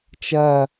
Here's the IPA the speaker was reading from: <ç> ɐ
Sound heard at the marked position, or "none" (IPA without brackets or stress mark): t͡ʃ